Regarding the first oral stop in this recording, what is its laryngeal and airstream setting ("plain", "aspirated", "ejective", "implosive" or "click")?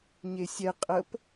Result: ejective